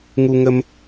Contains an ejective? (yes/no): no